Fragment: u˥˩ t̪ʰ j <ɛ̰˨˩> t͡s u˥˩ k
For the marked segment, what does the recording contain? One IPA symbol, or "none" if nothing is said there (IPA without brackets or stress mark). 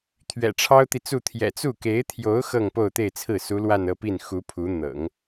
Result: ɛ̰˨˩